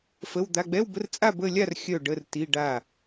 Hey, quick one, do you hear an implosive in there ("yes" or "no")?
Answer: no